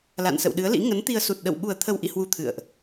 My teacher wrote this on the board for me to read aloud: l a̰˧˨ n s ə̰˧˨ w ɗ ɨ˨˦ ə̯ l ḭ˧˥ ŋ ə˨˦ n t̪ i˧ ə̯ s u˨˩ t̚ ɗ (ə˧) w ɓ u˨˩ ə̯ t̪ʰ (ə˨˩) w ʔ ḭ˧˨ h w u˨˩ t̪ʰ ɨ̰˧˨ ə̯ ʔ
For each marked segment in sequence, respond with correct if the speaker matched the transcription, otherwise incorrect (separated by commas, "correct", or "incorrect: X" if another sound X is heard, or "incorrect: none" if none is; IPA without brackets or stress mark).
incorrect: ə̰˧˨, correct